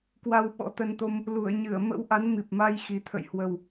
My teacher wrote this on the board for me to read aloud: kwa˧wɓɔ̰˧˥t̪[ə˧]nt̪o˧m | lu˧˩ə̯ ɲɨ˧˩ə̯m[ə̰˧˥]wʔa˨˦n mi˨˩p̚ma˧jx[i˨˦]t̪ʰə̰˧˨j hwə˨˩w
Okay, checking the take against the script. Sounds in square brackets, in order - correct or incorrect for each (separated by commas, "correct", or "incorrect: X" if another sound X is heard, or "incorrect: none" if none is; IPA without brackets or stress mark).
correct, correct, incorrect: i˨˩